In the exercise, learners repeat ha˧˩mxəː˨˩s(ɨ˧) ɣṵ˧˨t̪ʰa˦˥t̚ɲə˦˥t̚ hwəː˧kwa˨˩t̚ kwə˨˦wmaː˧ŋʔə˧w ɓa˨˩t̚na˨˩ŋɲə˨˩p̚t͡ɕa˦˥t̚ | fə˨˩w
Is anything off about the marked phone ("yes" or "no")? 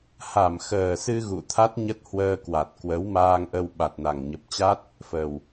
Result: no